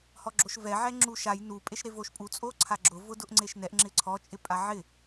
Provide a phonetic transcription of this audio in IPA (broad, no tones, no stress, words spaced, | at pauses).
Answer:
hɔɡ͡ǁoʃvɛ ʕɛŋ͡ǁuʃaj nu pʼeʃɾevoʃpʼu t͡sʼoǀʰaɡ͡ǁʊ vʊdʊʔŋ͡ǀeʃnɛʔ ŋ͡ǁɪǀʰɔ t͡ʃʼɪpʼaʕɪ